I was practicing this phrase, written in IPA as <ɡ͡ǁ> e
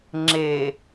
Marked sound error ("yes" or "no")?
yes